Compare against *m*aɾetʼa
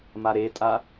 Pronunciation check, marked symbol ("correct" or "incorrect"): correct